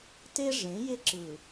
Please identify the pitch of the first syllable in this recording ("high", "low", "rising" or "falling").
high